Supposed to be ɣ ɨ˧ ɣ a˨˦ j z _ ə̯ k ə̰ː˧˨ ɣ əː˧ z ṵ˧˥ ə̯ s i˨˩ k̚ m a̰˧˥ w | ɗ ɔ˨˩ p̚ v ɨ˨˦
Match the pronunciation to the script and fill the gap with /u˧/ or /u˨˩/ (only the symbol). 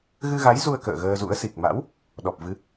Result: u˧